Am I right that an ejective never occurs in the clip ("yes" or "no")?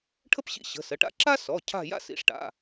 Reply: yes